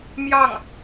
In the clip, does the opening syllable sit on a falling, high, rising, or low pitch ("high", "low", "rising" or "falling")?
falling